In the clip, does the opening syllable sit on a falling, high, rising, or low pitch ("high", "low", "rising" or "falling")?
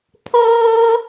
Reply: high